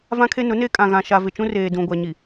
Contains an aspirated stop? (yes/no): yes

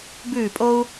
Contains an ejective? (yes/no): yes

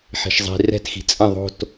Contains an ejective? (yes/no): yes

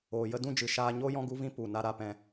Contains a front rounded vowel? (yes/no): no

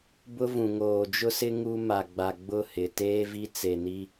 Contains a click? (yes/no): no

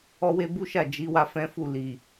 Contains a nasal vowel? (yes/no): yes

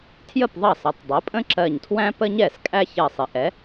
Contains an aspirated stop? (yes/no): yes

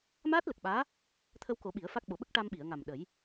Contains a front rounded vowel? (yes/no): no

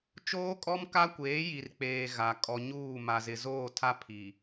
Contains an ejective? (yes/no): yes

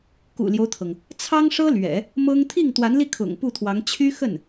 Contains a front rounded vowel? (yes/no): yes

